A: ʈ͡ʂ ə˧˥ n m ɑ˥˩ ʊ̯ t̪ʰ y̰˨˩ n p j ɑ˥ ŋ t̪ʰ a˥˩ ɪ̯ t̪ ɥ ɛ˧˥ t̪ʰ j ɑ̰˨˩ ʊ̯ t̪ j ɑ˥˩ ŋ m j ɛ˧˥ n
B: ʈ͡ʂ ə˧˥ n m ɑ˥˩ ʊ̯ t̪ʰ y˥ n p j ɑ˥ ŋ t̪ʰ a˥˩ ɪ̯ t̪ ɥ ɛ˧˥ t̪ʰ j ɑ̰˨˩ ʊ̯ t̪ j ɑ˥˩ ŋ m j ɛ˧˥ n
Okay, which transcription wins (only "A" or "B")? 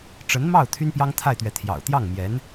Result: B